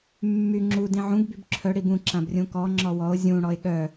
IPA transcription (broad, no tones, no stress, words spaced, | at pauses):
mːy ŋ͡ǁu dĩʕũɡ bybǁʰœ ɽibũ ǁãbrʲũkɔ ŋ͡ǁɔwɔo̯ zʲũ ɽɔe̯ɠœ